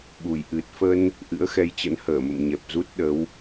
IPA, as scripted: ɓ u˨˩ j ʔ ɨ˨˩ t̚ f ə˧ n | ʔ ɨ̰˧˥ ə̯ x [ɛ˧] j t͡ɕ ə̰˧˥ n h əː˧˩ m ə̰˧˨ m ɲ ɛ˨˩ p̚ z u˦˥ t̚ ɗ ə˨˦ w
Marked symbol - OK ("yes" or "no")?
yes